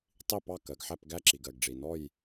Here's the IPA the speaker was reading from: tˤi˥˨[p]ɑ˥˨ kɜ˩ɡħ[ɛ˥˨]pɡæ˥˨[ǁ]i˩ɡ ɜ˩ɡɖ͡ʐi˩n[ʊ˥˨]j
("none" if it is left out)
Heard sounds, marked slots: p, æ˥˨, ǁ, ɔ˥˨

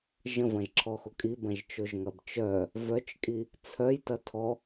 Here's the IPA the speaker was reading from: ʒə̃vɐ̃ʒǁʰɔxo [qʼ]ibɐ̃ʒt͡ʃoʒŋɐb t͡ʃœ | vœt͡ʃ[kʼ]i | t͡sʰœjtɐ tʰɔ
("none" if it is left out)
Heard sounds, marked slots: kʼ, kʼ

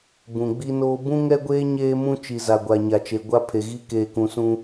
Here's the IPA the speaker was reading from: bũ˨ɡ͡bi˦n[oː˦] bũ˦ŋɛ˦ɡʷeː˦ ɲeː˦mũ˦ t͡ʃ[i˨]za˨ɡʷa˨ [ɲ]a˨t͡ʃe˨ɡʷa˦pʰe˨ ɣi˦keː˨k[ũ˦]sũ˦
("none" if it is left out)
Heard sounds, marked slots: oː˦, i˨, ɲ, ũ˨

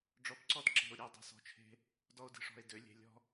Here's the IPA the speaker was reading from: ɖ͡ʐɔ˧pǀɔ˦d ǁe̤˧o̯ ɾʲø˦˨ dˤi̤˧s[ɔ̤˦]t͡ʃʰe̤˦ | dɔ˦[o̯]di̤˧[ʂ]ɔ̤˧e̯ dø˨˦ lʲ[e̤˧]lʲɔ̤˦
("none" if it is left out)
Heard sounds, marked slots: ɔ̤˧, o̯, ʂ, e̤˧

